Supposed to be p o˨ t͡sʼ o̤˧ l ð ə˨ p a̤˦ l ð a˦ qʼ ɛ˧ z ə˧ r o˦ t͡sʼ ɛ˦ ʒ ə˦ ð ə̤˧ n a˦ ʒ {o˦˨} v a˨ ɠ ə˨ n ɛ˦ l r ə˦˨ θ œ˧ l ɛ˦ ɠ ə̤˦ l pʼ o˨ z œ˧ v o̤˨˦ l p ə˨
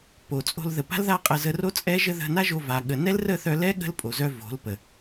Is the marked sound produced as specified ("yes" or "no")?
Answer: no